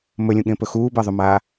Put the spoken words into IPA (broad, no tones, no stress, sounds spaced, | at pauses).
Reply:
m ɵ lʲ ũ ɠ ẽ p ɵ x uː b ɜ ðˤ ɵ m aː